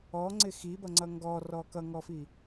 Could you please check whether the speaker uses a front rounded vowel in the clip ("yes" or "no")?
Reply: no